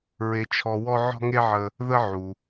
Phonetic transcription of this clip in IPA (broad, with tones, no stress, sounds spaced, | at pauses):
ɹ e˨ t͡ʃʰ ɔ˨ w ɔ˦ ʕ ɔ̤˦ ŋ e˦ ʕ ə˨ | ð ə˦ ʕ u˩